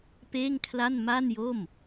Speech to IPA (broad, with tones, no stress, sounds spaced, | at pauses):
p eː˥˩ ŋ kʰ l a˥˩ n m a˥˩ n j o˥˩ m